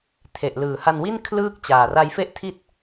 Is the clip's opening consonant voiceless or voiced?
voiceless